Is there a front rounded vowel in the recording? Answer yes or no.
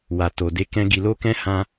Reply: no